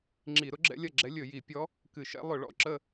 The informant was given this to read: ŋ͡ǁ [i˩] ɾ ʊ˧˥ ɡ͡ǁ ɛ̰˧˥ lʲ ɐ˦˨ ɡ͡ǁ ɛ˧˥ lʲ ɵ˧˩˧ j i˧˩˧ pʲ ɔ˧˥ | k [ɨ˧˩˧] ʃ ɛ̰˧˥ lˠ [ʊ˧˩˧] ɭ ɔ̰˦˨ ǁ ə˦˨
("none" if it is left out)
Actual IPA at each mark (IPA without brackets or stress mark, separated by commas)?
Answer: i˧˩˧, ɨ˧˩˧, ʊ˧˩˧